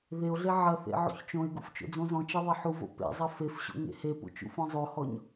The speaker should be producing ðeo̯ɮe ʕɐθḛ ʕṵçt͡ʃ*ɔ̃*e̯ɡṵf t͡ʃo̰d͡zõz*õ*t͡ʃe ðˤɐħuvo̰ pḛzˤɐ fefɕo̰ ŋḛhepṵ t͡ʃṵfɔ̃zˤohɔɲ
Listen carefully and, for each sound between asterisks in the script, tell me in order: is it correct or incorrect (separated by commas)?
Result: incorrect, incorrect